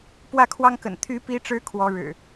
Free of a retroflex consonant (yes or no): no